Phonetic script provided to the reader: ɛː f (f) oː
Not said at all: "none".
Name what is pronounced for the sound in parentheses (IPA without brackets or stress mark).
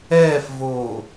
v